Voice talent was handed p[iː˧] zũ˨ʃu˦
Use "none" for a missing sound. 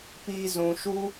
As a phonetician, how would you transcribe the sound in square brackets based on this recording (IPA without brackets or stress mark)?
iː˧